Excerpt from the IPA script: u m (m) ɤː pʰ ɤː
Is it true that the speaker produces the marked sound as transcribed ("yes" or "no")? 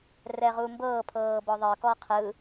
no